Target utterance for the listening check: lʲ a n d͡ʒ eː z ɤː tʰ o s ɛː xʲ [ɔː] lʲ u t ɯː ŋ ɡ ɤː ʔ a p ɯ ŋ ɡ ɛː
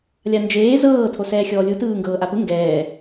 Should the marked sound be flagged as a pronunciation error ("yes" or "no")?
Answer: no